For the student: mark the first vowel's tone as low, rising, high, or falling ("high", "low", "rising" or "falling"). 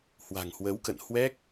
low